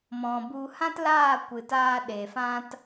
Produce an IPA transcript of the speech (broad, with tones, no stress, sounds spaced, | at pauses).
m ɔ̃˨ b u˧ h ã˦ t l aː˦˨ kʷ ɨ˨ t aː˧ ɗ e˨ f ã˦ t